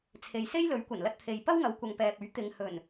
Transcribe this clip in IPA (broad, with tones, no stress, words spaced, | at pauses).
t͡sʰe˨jse˥jlɵ˨˥ɥkʷɐ˨˩n lɐ˧t̚t̪ʰe˨jpɐ˥wŋɐ˨˧w kʷɐ˨ŋpɛː˨p̚ɵ˨˥ɥ t̪ɪ˨ŋ hɵ˨˩n